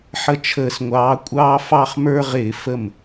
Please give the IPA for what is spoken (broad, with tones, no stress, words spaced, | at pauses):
ħə˦t͡ʃʰəː˧˩˧sŋʷɑː˨˥ kʷʼɑː˦fɑ˦χmə˞˦ʁɪː˧˩˧ fə˥˩m